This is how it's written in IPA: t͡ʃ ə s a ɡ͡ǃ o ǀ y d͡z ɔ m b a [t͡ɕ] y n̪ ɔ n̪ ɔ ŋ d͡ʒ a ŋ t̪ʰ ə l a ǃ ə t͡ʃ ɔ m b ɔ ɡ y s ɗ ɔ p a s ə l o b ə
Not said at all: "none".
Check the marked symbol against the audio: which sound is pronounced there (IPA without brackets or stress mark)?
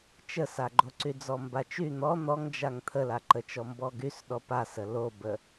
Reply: t͡ʃ